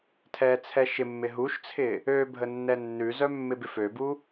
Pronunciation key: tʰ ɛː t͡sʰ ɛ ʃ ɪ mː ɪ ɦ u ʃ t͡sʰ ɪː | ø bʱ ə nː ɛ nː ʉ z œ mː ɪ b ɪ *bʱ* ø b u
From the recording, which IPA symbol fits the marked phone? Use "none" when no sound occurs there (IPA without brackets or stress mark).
f